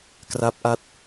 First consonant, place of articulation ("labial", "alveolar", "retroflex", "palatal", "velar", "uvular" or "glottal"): velar